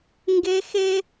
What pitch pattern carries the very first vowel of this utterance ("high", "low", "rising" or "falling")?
high